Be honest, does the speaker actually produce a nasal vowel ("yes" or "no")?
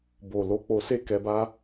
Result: no